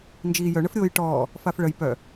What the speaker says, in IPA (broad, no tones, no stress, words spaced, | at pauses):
nd͡ʒiːjœɳəf ɾʲoːjʈɔː | fafɭəj pœ